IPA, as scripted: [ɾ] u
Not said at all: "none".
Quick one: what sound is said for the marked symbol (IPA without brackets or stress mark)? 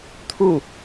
t̪ʰ